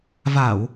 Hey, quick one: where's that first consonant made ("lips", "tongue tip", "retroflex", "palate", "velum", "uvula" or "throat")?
lips